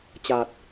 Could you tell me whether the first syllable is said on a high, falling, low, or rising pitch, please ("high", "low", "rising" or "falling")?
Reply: low